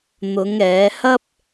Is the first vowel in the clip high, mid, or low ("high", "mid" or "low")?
high